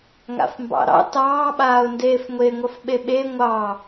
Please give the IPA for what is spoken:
ŋ a̰ f m b ɑ̰ ɾ ɑ̰ t ɑː ɓ aː ʊ̯ n d eː f ŋʷ e ŋʷ ɐ f ɓ e ɓ e ŋʷ ɑ

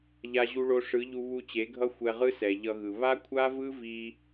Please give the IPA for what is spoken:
ʎ a˧ ʑ u˧ ɭ o˧ ʂ ɯ˨˦ ʎ u˧ β u˧ t͡ɕ e˨˦ ɡʱ ʌ˦ xʷ ɛ˧ ʁ ɯ˦ s ɛ˨ ʎ ʌ˧ ɣ ɯ˨ β a˦ kʷʰ a˦ v ɯ˦ v i˧

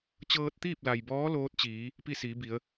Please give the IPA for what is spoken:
t͡ɕ ɤː˧ t̚ t̪ iː˥˨ p̚ l a˩ j b ɔː˧˥ l oː˧˥ t̚ t͡ɕ iː˩˧ | p i˥˨ s iː˩˧ b i˩˧ ə̯

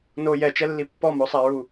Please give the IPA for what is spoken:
n o j ɛ t͡ʃ ɛ lː i pː ɔ m o sˤ a ɹ u

